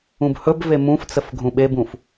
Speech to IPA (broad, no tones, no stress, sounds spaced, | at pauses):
ũ b h ɵ b v e m ũ f t͡s ə f ɡʱ ũ ɓ e b ũ f